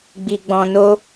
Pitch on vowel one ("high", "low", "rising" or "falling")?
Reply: low